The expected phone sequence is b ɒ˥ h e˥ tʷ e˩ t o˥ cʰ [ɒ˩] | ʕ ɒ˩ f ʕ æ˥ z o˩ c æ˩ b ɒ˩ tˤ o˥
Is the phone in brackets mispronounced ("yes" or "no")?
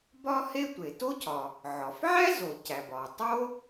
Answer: no